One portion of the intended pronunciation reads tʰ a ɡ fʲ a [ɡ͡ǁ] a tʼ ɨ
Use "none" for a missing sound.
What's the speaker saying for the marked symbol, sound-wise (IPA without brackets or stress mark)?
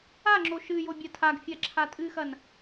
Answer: ǁʰ